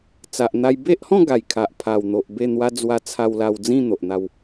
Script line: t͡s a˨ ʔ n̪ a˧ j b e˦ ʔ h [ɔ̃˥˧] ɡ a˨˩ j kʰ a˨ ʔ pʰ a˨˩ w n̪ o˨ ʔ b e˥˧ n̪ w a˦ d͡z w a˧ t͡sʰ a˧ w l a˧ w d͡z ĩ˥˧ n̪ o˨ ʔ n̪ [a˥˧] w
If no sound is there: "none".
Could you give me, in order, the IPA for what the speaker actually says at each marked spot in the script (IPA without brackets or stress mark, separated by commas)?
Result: ɔ̃˥˧, a˥˧